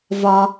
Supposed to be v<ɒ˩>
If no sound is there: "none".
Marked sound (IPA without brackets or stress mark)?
ɒ˩